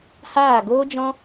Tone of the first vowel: falling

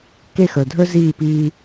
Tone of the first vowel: falling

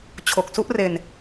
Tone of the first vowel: low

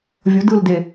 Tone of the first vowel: rising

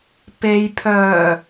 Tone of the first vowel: low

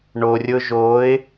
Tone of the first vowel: low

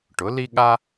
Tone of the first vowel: rising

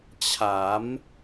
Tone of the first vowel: rising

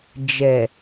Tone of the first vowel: low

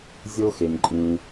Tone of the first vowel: high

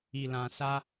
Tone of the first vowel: low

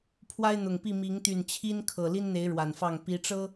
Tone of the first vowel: high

